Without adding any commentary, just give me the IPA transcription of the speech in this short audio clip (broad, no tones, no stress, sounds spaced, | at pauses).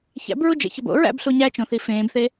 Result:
ç æ̰ b ɹ u d͡ʒ ḛ ç ɒ b o̰ ɹ æ̰ b ɬ u ɲ æ t͡ʃ õ θ i f ẽː b θ e